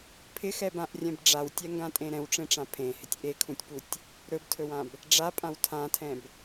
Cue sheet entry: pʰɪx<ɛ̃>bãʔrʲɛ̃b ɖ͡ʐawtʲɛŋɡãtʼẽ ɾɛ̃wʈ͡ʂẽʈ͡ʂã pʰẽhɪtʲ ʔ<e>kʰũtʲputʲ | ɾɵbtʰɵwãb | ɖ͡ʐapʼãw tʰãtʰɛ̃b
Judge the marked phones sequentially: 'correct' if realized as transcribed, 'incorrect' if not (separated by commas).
incorrect, correct